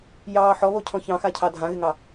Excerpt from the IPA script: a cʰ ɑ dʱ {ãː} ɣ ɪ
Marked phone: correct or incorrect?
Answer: incorrect